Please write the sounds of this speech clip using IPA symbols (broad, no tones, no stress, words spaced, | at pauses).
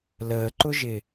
ləːǃʊʒɪ